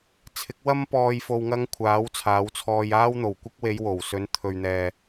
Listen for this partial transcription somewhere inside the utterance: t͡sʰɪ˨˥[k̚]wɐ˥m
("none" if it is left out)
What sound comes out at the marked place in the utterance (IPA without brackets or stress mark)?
k̚